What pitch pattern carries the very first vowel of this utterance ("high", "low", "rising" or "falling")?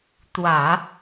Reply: low